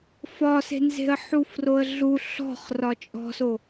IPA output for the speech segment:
f ɒ s e̤ n z e̤ ə̯ ħ u f r o ə̯ ɮ u ɬ ɔ̤ χ r ɒ t͡ʃʼ ɔ̤ s o

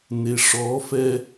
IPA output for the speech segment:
n e ʂ ɔ f ɛ

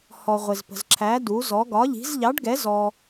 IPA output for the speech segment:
h ɔ˧ ʁʷ ɪ˧ z p ə̤˧ z ǁʰ æ˧˥ d u˧˥ z ɔ˧˥ ɡ ɒ˧˥ ʎ i̤˧˥ z ʎ ɑ˧˥ ɖ ɡ ɛ˧˥ z ɔ˧

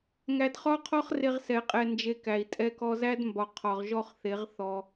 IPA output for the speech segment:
ŋ æ˧ d χ ɒ˦ qʰ ɒ˦ χ r e˦ ʁ s ɛ˧ qʼ ɛ˧ n d͡ʒ e˧ k æ˨ i̯ tʼ ɛ˧ k ɔ˧ z æ˦ d m b ɒ˨ qʰ ɒ˨ ʁ ʒ ɔ˦˨ χ θ e˨˦ ʁ θ ɔ˧

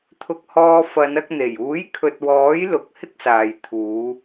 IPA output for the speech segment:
t̪ʰ ʊ˧ k̚ h ɔː˧ f ɐ˨˧ n ɐ˧ k̚ n̪ e˨˩ j uː˨˥ j kʰ ɵ˨ t̚ w ɔː˨˥ j l ʊ˧ k̚ h ɪ˥ k̚ s aː˨ j t̪ʰ uː˨˧

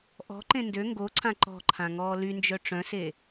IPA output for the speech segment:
ʔ ɔ̤ ǃ ẽ n d ø ŋ ɡ o ǀʰ ã ǃ ɔ̤ ǃʰ ã ŋ ɔː l y n d͡ʒ œ ʈ͡ʂ œ̃ s e

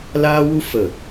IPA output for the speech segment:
l aː˦ w u˦ f ə˦˨

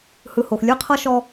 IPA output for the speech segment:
h ɯ˦ h o˧ x lʲ ɯ˦ qʰ ɤ˦ ʃ ɔ˦

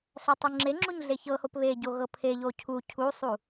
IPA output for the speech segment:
ɬ æ tˤ u ŋ͡ǁ e ŋ͡ǁ u ɲ ɮ e ç ɤ h o p β e ɟ o ɣ ɤ pʰ e ʎ o cʰ u cʰ u sˤ u

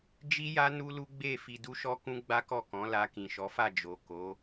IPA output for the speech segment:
d͡ʒ i˦ j a˦ n u˦ l u˦ ɡ͡b e˦˨ f i˧ d u˦ ʃ ɔ˦ k ũ˦ ɡ͡b a˦ k ɔ˦˨ k ɔ̃˨˦ l a˧ k ĩ˨ ʃ ɔ˨˦ f a˦˨ d͡ʒ o˨ k o˨˦

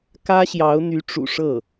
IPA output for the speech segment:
k ä˥ ɕ j ɑ˧˥ ʊ̯ n̪ y˧˥ ʈ͡ʂ ṵ˨˩ ʂ ɤ˥˩

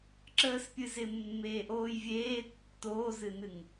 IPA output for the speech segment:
ǁ əː s pʲ ɨ z ɪ mː eː ʔ oː j vʲ eː tː oː z ɨ n ɨ ŋ

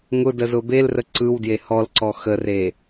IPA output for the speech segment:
ŋ ʊ d ə z ʊ b e l r ə ǀ ɯ w d j e h ɔ l ǀ ɔ x ə r e

